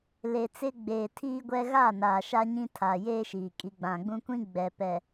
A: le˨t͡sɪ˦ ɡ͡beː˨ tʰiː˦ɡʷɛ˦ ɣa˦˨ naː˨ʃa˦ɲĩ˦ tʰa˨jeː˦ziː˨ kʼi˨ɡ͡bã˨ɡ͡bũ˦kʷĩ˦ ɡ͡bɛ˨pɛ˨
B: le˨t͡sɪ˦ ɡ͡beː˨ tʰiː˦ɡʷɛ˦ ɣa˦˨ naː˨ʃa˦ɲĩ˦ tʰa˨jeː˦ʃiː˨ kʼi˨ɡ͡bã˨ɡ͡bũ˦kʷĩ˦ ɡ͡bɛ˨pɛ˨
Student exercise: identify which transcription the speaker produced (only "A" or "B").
B